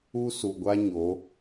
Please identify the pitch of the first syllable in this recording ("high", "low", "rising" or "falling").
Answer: high